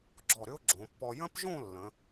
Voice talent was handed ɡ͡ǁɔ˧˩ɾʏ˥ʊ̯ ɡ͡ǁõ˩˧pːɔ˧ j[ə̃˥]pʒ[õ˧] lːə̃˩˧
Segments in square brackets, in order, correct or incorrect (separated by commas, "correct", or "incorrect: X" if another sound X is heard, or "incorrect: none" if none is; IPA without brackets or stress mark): correct, incorrect: õ˥˧